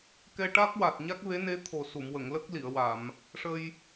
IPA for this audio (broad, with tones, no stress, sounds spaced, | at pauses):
k ɛ˧ ʈ a˦˥ k̚ w a˨˩ t̚ ɲ a˦˥ k̚ v e˧˥ n e˧˥ t̪ʰ o˨˩ s u˨˩˨ m w ə˨˩˨ ŋ l ə˦˥ k̚ l i˨˩˨ ə̯ w a˨˩˨ m | ʂ ə˧ j